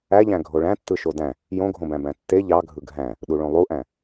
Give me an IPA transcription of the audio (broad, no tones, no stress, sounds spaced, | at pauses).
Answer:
æ ʎ æ̃ ɡʱ o ɭ æ̃ tː ɯ ʃ o d æ̃ | j õ ɡʱ õ b æ̃ b æ̃ tː e ʎ ɑ ɡʱ ɯ ɡʱ æ̃ | ɗ u ɭ õ lˠ u ʔ æ̃